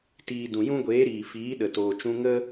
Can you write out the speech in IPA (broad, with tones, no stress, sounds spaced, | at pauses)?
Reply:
t iː˨ d ũ˨ j ũ˦ ɡʷ eː˨˦ ɾ iː˨ f iː˨˦ ɗ ə˨ t oː˨ t͡ʃ ũ˧ ŋ ə˦